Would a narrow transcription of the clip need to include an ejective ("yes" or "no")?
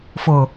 no